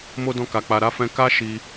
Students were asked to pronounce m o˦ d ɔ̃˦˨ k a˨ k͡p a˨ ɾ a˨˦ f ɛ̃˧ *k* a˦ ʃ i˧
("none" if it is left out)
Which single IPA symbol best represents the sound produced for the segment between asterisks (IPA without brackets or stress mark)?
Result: k